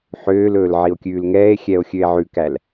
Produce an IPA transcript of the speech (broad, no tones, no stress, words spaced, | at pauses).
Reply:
ħøːlɵːl ʕio̯kʲʉːlŋɛːe̯xʲɛo̯ xʲøe̯ʕʉkæl